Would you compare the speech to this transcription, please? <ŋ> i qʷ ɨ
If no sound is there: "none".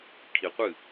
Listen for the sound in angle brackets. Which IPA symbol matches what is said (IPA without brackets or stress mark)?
kʰ